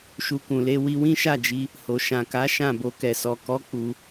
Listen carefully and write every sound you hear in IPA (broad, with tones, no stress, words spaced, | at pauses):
ʃu˧kũ˨le˧ wi˧wĩ˦ʃa˦˨d͡ʒi˧ | ho˨ ʃã˨ka˨˦ ʃã˦˨bo˧kɛ˨sɔ˨ kɔ˨˦ k͡pu˧